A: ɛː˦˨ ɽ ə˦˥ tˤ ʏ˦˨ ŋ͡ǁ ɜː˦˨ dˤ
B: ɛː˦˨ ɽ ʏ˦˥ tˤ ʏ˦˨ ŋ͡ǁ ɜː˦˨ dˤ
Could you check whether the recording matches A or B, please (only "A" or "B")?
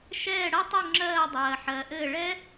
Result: A